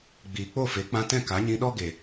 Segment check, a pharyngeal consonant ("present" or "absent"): absent